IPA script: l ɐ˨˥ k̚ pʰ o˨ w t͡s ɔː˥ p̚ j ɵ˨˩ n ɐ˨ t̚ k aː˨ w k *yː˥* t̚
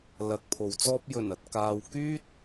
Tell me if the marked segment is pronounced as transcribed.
yes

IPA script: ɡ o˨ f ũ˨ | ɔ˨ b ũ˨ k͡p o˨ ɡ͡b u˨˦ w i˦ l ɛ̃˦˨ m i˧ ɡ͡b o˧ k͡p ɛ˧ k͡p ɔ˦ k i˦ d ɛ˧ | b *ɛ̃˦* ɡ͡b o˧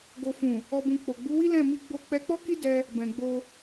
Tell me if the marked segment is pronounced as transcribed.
no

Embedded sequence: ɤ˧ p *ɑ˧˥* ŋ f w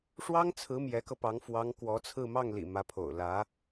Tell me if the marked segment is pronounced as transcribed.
yes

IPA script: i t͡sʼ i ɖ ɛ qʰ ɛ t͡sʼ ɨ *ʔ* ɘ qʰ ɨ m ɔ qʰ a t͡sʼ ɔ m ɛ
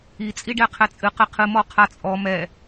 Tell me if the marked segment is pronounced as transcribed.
no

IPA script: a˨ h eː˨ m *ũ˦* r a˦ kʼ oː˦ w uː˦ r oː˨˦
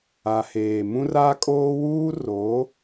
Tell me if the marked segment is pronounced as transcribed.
yes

